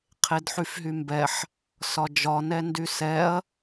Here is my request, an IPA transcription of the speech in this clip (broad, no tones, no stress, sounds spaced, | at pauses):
qʰ e d ħ y f ɦ y m b ɛ ħ | s ɒ d͡ʒ ɒ n ɛ n d y s ɛ ɐ̯